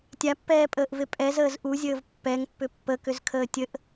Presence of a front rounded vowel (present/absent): present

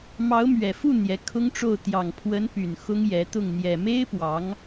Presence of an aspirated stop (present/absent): present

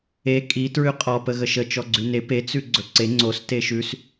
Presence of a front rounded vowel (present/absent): absent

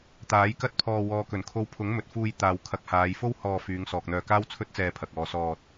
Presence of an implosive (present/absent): absent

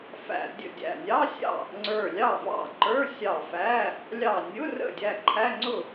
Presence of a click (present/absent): present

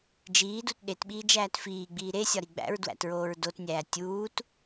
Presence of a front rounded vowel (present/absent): absent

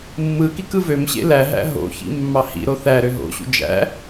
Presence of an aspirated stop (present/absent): absent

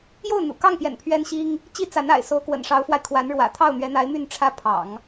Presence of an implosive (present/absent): absent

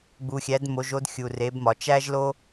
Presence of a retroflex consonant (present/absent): absent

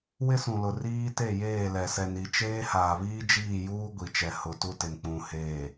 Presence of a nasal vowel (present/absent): present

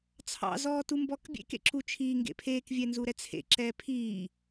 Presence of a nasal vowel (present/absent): absent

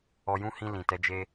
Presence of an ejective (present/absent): absent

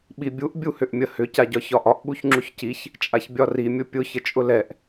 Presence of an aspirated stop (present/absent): absent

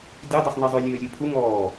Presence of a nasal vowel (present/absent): absent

